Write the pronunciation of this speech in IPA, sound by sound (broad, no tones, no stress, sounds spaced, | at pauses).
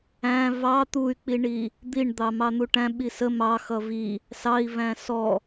æ̃ v ɑ t̪ u y̯ k͡p i ɳ i | d̪ i ɳ d̪ ɑ m ɑ n̪ u ʈ æ̃ ɓ i s ə m ɑ x ʌ v i | s ɑ i̯ v æ̃ s ɔ